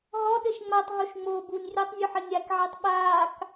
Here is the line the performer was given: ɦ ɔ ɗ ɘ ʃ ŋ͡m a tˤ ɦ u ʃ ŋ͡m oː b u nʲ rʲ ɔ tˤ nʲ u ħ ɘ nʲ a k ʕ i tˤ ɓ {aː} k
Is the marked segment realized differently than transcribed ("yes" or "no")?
no